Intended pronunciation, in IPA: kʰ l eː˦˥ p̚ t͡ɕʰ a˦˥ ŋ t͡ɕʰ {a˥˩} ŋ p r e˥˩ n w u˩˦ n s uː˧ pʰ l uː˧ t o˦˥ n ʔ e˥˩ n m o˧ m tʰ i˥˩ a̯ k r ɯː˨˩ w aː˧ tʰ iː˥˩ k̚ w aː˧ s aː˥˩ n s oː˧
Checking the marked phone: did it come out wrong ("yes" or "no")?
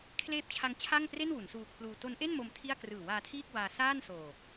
no